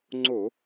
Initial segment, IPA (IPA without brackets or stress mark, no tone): ŋ͡ǀ